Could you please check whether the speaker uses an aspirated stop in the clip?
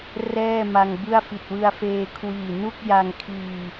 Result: yes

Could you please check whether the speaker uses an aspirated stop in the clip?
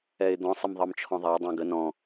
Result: yes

